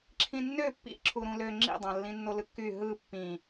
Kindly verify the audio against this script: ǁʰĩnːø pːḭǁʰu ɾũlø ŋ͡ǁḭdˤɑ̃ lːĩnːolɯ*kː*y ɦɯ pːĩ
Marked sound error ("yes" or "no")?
no